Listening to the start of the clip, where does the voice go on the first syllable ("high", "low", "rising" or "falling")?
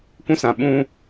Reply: high